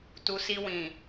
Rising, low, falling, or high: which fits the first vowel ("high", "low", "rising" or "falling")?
low